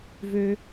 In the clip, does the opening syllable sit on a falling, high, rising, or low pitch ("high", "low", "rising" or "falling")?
high